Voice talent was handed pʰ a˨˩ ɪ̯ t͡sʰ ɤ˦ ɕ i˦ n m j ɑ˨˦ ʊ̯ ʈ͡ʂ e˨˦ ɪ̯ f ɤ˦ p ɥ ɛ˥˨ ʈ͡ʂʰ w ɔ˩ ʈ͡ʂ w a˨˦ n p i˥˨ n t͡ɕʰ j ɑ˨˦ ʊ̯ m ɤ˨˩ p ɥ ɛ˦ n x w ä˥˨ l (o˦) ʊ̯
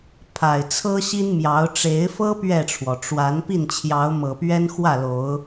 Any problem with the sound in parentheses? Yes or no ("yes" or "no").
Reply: yes